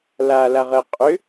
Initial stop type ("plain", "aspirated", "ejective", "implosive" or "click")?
ejective